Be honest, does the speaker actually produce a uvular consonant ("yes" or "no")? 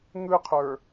yes